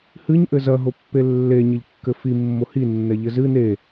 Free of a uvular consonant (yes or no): yes